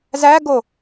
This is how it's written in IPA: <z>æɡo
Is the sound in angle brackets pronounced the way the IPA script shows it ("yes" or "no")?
yes